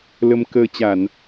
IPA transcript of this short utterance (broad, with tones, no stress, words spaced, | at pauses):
lə˧m kəː˧ t͡ɕa˧˩˨n